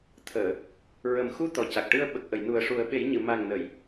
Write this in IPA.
t̪ʰ əː˨˩˨ | ɹ ə˨˩ m x u˧ t̪ ɔ˨˩ c a˨˩ k̚ ʈ ɨ˧ ə̯ ɓ ə˨˩ k̚ ʔ ə˨˩˨ j n u˨˩ ə̯ ʂ u˨˩˦ ə̯ ɓ e˨˩˦ j ɲ ɨ˨˩˨ m a˨˩ ŋ n ə˨˩˨ j

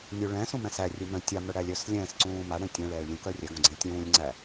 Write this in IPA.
nʲ u ɭ ɛ̃ s ũ m ɛ̃ s æ rʲ u m œ̃ tʲ a m œ ɽ æ lʲ œ s lʲ ɛ̃ː s ǀ ũː m a ɽ ɛ̃ tʲ ɛ̃ ɭ ɛː ɭ lʲ ũ k œ rʲ ɛ ɡ õ ɡ͡ǀ ɛ̃ tʲ ũː lʲ ŋ͡ǀ æ

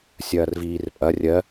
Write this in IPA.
sʲ ɐː r v iː r pʼ ɐ rʲ ɜ

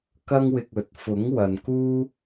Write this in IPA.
k ɐ˥ ŋ w ɪ˧ k̚ ɵ˨˥ t̚ f ʊ˨˥ ŋ w ɐ˨ n k uː˥

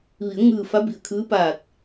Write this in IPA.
ʋ i˩˧ ə̯ ŋ ɯː˧˩ f a˧˥ b i˧˩ ə̯ kʰ ɯː˧˥ p aː˧˩ t̚

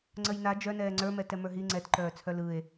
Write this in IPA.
ŋ͡ǀ ə j n a d͡ʒ œ n ɛː ŋ͡ǀ ə˞ m ɛ t ɛ m ə˞ ɦ i ŋ͡ǀ ɛ t ǃ œː t͡sʰ œ l ɯ e̯

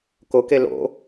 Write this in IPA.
k o k e l o̰

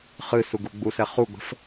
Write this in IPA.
χ ɨ s u ɡ u ɡ͡b u s ɛ χ u ɡ͡b ə̤ f

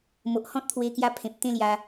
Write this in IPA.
m o˨ ʔ h ɔ̃˦ t̚ t̪ʰ w e˧ k j a˧ pʰ ẽ˨ p̚ t̪ ẽ˥˧ l j a˧

